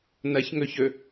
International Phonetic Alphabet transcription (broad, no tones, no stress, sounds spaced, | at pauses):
n ɐ ç ŋ ɵ ç ɵ